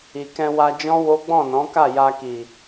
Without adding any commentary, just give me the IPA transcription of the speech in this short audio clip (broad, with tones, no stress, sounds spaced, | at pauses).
i˨ k ɛ̃˧ w a˧ d͡ʒ ɔ̃˦ w o˦ ɡ͡b ɔ̃˦˨ n ɔ̃˨˦ k a˦˨ j a˧ k i˨